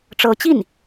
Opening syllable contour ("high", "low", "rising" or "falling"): rising